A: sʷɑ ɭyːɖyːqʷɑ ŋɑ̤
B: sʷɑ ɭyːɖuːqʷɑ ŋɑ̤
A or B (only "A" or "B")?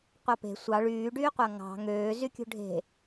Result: A